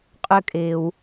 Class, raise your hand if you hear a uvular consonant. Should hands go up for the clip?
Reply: yes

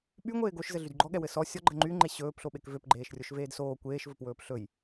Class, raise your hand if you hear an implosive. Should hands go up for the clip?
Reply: yes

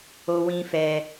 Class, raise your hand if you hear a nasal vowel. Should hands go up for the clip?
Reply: yes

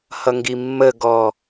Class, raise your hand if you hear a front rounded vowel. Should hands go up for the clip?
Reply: no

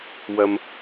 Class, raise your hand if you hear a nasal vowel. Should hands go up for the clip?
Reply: no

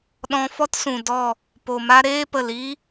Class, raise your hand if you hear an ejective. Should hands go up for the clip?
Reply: no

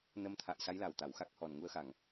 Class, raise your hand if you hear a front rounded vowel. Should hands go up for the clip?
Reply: no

